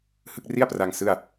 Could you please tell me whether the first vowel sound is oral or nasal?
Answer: oral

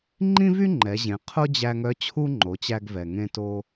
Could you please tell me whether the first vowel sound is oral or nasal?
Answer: nasal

